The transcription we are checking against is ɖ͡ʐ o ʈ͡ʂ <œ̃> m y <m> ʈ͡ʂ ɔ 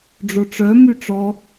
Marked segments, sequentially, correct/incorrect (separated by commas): incorrect, incorrect